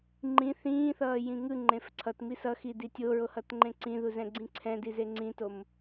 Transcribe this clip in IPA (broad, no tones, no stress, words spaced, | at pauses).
ŋ͡ǃĩ θĩːθʌːjĩ ŋɯŋ͡ǃẽf ǀʰʌtmi sʌxidi tʲoɹohʌtŋ͡ǃẽ ǀĩðuzɛ̃ɡ͡ǀĩ ǀʰɛ̃dize ŋ͡ǀĩtom